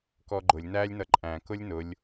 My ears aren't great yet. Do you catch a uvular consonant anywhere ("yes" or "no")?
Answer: no